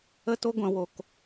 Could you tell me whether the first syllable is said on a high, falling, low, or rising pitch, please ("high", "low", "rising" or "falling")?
high